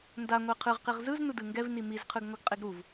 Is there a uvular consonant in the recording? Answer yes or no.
yes